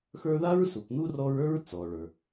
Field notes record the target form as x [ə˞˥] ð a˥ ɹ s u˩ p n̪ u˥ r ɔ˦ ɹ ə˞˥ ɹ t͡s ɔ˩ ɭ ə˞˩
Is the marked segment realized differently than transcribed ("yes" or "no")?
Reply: yes